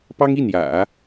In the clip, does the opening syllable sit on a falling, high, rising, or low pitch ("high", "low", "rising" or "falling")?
high